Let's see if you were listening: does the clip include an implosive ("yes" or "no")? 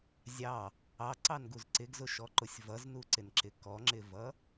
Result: no